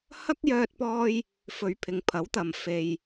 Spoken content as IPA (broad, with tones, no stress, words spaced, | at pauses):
hɐ˥k̚jœː˧t̚pɔː˧j | fɵ˨˧ɥpʰɪ˨ŋpʰɐ˨˥wt̪ɐ˨m fe˨j